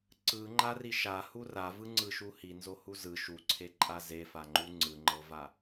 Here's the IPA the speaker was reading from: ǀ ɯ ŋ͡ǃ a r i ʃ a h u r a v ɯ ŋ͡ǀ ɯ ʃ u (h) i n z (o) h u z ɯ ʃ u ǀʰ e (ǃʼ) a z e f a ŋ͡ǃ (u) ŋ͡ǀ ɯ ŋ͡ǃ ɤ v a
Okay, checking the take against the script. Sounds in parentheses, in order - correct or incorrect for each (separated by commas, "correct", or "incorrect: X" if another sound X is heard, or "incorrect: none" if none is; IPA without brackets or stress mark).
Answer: correct, correct, correct, correct